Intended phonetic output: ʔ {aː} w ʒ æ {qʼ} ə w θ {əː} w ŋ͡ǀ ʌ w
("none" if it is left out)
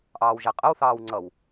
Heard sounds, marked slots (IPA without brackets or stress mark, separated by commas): ɑː, qʼ, ɑː